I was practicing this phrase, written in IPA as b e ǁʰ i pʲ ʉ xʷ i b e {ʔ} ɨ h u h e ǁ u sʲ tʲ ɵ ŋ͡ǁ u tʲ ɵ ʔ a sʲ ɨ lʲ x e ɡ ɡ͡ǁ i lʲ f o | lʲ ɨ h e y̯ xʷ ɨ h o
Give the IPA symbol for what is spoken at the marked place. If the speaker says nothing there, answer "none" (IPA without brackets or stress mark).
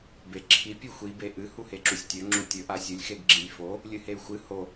ʔ